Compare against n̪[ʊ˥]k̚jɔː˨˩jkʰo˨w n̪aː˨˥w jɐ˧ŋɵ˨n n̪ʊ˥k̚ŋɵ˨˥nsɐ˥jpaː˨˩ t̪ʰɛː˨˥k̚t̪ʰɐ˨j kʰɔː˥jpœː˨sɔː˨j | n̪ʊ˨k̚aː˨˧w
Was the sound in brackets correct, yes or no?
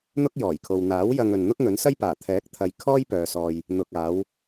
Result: yes